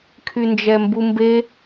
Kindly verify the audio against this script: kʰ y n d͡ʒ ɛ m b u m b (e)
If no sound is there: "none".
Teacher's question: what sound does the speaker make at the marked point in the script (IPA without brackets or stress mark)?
e